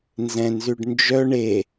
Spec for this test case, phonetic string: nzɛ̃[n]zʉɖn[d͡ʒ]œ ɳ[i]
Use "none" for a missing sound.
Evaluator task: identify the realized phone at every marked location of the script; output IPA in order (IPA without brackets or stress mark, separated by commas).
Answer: n, d͡ʒ, e